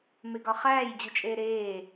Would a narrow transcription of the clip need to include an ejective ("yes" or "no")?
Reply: yes